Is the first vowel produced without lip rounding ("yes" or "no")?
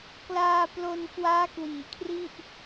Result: yes